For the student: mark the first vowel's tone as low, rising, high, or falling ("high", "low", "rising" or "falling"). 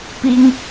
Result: high